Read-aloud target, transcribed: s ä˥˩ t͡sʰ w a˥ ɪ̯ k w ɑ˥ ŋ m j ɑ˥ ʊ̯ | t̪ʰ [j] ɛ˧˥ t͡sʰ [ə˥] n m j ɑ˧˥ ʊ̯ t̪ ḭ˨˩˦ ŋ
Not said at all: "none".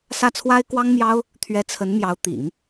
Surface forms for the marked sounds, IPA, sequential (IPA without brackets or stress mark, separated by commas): ɥ, ə˧˥